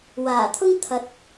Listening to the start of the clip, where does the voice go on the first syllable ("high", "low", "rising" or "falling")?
low